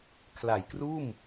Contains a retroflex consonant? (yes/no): no